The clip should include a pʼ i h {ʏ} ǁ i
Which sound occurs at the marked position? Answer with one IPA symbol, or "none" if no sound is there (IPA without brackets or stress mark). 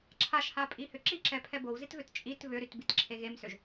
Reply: ʏ